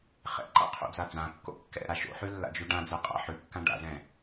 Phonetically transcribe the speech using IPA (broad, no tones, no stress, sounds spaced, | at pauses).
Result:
χ ɛ̰ ǃ a̰ qʰ o̰ d͡z a d͡z ã kː o̰ kː ɛ̰ ɾ a ʃ o̰ ħ ʉ lː a̰ d͡ʒ ʉ ɖ ã d͡z ɛ qʼ a̰ ħ ʉ kː ã ɖ a̰ z ɛ̃